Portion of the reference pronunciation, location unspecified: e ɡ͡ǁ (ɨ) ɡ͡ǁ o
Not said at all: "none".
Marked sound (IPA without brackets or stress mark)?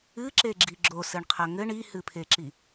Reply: i